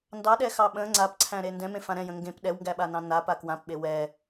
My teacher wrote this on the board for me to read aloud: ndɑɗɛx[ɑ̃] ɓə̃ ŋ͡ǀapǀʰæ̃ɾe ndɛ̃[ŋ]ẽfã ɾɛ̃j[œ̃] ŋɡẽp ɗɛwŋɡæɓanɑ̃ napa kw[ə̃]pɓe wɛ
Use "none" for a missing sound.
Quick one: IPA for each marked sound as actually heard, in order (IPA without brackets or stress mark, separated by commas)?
ɑ, m, ə̃, ã